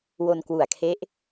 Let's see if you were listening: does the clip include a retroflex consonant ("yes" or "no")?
no